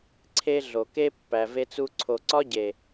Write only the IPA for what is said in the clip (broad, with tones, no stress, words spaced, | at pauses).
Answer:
ǀʰe˦ɮo˨ ke˦pːæ˨ve˧t͡su˧ ǀʰo˨ǀɒ˦ɟe˨